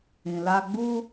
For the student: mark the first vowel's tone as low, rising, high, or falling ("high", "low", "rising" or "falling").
low